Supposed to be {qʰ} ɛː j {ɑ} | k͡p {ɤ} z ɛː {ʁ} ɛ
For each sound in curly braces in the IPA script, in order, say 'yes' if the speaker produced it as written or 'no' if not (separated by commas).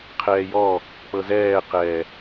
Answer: yes, no, yes, no